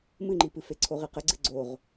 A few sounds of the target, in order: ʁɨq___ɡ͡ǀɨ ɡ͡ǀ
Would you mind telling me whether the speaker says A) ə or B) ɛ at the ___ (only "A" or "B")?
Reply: A